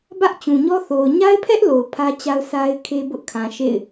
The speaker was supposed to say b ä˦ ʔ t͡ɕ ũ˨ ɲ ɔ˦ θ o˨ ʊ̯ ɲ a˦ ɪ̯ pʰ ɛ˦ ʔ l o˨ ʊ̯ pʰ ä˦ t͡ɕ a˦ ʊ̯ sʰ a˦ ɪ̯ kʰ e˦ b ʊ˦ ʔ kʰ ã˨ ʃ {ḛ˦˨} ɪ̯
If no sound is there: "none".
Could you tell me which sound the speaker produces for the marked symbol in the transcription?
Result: ḛ˦˨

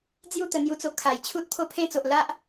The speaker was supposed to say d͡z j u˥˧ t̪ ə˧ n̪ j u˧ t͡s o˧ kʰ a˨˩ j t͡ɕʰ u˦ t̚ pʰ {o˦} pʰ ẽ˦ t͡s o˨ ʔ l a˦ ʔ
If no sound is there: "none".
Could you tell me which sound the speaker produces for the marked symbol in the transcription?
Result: o˦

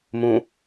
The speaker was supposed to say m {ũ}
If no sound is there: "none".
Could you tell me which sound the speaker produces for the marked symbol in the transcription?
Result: ũ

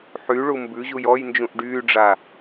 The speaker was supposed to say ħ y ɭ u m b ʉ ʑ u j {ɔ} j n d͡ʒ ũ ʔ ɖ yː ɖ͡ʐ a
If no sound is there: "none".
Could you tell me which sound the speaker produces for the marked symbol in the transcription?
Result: ɔ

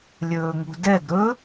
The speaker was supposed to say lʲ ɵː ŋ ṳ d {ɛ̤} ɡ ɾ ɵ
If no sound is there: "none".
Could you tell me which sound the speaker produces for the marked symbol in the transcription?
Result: ɛ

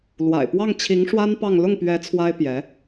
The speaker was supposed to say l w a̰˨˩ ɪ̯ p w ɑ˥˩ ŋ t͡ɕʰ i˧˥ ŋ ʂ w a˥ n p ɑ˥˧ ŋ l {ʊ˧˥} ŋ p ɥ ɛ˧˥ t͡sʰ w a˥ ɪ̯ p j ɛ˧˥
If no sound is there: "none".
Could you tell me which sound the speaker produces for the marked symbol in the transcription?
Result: ʊ˥˩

